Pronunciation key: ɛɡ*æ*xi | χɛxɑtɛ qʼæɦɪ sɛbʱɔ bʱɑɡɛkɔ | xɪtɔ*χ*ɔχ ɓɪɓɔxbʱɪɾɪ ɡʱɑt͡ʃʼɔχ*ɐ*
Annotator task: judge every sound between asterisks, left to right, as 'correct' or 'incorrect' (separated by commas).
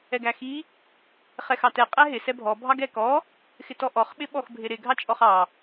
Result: correct, incorrect, incorrect